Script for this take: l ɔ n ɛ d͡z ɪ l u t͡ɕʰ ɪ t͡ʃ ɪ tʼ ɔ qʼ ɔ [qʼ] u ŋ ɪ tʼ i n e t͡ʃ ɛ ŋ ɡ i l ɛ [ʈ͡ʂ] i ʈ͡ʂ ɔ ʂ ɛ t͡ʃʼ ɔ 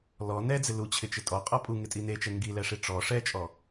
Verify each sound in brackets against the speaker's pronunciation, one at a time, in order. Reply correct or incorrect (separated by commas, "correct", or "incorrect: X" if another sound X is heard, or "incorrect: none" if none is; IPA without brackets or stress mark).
incorrect: pʼ, incorrect: ʂ